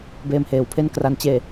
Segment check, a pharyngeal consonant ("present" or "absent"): absent